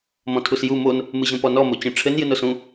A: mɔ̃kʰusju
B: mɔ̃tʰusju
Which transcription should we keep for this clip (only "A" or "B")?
B